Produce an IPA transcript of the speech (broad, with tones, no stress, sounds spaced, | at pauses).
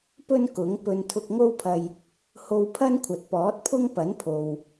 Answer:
p ɵ˥ n k ʊ˨˥ ŋ p ɵ˧ n t̪ʰ ʊ˧ k̚ ŋ o˥ w pʰ ɐ˧ j | h o˧ w pʰ ɐ˥ n kʷʰ ɐ˨ t̚ p ɔː˨˥ t̚ pʰ ʊ˥ ŋ p ɐ˨˥ n pʰ o˨ w